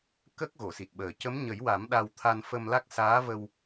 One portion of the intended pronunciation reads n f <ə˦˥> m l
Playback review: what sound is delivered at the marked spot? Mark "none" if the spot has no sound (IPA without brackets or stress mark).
ə˧